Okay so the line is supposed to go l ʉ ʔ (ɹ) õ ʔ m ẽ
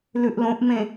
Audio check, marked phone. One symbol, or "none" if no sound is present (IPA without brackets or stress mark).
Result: l